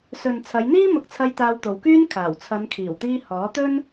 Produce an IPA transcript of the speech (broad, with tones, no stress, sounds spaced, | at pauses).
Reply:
s ɵ˨ n t͡sʰ ɐ˨˧ j n̪ iː˥ m ʊ˧ k̚ t͡sʰ ɐ˧ j t̪ aː˧ w t̪ o˨ w k yː˥ n kʰ aː˨˩ w t͡sʰ ɐ˨˧ n kʰ iː˨˩ w t̪ iː˧ h ɔː˨˥ t̪ ɵ˥ n